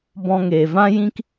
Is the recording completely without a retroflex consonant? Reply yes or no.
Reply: yes